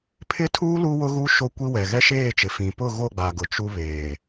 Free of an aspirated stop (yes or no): no